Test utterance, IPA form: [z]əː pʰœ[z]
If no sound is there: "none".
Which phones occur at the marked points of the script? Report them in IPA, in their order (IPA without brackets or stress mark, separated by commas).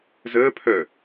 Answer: z, none